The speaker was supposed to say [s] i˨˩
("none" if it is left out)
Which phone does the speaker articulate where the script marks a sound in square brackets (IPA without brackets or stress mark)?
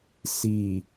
s